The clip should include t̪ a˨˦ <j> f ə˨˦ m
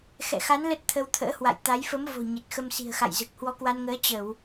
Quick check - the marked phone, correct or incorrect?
correct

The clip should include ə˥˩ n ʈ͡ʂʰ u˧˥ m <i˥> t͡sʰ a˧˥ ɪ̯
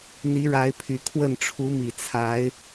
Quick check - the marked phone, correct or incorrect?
incorrect: i˨˩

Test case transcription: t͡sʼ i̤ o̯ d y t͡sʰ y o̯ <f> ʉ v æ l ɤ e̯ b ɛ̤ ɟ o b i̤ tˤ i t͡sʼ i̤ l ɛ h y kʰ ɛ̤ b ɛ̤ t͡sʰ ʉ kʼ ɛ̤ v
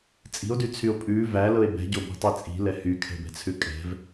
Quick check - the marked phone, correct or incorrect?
incorrect: pʼ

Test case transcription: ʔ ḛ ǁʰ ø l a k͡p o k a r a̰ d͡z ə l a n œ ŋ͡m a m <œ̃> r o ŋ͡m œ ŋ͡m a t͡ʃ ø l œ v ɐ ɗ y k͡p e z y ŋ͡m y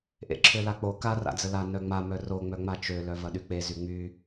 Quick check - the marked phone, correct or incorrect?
incorrect: œ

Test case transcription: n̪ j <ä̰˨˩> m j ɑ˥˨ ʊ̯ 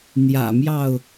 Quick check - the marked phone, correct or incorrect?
correct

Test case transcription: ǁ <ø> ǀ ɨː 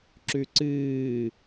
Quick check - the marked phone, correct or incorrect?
incorrect: ʉ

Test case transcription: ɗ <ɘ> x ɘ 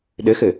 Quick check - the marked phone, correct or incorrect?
correct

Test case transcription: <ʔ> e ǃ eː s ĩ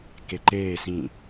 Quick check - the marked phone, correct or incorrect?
incorrect: k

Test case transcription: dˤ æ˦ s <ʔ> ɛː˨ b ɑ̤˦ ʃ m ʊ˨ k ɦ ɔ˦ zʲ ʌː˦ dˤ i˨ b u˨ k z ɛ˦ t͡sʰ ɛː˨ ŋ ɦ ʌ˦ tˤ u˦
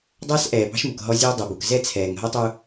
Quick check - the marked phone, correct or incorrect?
correct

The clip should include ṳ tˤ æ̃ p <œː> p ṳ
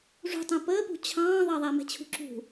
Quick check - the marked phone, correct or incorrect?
incorrect: əː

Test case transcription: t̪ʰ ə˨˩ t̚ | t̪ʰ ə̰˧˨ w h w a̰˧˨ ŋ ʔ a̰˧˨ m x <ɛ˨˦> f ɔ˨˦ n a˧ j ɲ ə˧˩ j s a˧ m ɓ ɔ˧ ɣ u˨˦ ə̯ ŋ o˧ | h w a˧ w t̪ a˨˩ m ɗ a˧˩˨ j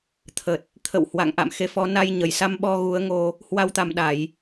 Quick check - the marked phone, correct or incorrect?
incorrect: e˨˦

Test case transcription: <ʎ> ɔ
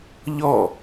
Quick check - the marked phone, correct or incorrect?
correct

